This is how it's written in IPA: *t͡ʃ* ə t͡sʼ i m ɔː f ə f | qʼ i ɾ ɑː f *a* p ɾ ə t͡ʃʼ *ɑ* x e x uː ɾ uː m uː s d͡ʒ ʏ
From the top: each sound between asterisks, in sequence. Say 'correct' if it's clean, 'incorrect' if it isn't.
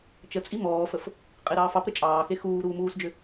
correct, incorrect: ɑ, incorrect: ɑː

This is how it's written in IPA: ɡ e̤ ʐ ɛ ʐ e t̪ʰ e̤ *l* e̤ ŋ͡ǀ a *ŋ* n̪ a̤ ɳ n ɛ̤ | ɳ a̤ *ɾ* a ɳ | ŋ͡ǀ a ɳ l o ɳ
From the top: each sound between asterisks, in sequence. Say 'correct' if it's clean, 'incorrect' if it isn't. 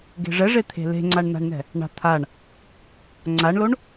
correct, incorrect: ɳ, incorrect: t̪ʰ

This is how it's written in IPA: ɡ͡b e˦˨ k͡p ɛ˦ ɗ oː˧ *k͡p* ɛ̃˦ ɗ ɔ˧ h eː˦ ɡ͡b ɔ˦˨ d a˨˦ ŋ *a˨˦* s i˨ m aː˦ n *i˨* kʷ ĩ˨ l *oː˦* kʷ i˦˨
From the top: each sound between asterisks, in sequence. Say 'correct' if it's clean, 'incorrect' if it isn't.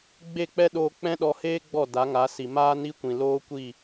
correct, correct, incorrect: i˦, correct

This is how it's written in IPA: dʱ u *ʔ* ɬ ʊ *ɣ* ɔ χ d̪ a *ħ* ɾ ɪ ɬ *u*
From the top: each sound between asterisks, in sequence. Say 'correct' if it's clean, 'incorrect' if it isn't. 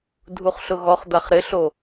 incorrect: χ, correct, incorrect: χ, incorrect: o

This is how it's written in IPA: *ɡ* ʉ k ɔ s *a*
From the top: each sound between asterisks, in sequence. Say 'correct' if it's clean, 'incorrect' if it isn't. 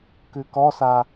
incorrect: k, correct

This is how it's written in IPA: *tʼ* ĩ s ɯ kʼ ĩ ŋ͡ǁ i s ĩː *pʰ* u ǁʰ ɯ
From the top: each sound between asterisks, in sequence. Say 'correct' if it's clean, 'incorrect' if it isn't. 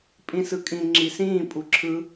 incorrect: pʼ, incorrect: pʼ

